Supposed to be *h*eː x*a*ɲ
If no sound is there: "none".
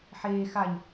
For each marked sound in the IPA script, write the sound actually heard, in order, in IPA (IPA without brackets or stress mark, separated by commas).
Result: ħ, a